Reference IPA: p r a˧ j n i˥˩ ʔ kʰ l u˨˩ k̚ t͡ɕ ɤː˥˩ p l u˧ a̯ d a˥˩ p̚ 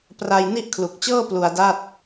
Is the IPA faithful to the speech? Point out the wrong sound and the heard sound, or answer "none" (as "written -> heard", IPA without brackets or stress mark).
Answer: p̚ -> t̚